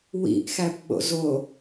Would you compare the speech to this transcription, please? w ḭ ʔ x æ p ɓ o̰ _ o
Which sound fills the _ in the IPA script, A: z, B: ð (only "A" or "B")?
A